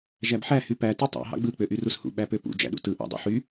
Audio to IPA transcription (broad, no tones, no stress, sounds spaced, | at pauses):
ʒ æ b ħ æ h y p æ t y tˤ æ̰ ɦ ɑ̰ ɡ͡b ɯ k͡p ø ʔ y r u s h ṵ ɓ æ p ø p ṵ d͡ʒ æ̰ ɗ ṵ t ɯ ʔ ɑ̰ dˤ ṵ ħ y